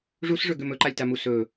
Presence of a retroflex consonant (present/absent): present